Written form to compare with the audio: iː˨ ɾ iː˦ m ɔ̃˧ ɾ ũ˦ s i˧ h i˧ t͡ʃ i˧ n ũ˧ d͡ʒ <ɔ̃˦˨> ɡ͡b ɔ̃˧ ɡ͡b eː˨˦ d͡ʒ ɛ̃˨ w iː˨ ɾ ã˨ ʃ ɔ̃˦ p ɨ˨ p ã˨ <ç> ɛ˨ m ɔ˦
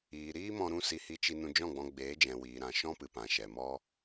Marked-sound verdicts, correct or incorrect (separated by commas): correct, incorrect